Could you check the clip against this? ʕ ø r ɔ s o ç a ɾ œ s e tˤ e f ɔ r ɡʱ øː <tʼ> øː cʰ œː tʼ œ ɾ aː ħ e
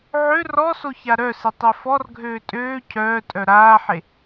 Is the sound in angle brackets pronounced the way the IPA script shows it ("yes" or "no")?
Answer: yes